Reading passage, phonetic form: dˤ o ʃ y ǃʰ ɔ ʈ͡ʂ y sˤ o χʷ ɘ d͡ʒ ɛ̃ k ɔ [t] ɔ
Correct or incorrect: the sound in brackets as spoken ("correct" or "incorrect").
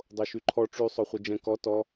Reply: correct